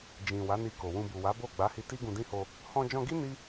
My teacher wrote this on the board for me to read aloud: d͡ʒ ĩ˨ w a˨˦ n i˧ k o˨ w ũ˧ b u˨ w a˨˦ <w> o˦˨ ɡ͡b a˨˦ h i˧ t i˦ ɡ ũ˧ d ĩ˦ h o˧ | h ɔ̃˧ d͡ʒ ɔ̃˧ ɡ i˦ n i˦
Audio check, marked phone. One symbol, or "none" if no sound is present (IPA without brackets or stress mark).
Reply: b